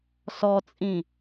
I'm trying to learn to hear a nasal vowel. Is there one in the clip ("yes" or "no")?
yes